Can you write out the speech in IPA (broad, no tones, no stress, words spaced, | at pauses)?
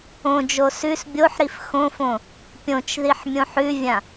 õd͡ʒo sʉs bʲoħɾif xõfõ | pʲõt͡ʃðiħ mʲõħʉvʲã